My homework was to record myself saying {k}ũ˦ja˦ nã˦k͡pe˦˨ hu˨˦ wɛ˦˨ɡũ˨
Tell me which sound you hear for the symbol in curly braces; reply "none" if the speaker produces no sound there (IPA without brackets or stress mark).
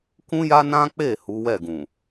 k